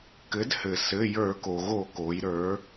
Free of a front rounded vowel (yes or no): yes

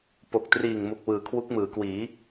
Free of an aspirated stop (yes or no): no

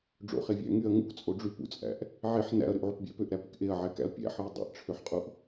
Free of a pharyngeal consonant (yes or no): no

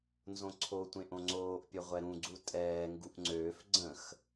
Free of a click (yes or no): no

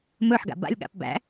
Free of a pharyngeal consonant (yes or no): no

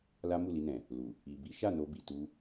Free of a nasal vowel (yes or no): no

